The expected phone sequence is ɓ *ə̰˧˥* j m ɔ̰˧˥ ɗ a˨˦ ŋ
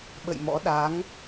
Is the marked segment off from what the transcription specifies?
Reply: yes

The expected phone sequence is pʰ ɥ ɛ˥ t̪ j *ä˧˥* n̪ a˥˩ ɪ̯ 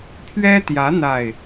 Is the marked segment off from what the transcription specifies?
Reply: no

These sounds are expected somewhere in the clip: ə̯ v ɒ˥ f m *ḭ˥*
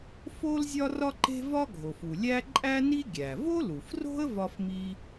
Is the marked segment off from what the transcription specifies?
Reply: yes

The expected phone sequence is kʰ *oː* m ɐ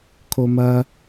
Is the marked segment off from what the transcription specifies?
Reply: yes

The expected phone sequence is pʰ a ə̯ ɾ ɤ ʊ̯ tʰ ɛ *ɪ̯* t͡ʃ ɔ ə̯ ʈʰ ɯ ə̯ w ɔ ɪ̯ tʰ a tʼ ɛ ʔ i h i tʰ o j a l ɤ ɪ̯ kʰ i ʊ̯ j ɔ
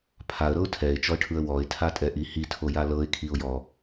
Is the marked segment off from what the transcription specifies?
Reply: no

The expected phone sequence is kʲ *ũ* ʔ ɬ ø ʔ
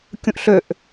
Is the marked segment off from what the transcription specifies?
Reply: no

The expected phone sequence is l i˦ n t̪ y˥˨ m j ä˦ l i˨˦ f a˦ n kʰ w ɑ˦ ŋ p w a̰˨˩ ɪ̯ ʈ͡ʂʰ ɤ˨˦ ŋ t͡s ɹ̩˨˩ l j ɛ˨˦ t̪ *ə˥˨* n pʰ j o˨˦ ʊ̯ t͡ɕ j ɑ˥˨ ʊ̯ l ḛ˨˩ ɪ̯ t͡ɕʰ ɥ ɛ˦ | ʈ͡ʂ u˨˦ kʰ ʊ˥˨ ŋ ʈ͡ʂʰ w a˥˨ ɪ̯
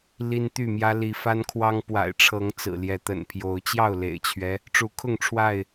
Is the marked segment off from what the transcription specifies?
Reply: yes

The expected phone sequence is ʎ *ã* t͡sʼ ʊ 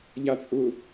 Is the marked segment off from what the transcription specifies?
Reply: yes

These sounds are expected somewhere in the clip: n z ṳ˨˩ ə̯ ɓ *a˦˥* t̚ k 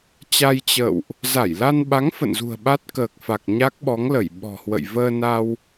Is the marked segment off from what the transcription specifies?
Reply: no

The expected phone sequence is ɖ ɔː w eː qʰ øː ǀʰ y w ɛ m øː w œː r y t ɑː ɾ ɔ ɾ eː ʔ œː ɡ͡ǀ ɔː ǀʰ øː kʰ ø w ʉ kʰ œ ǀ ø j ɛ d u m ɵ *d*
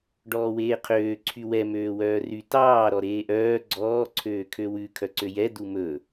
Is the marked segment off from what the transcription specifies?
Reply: yes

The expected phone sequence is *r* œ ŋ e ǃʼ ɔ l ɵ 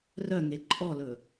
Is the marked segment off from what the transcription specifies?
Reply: no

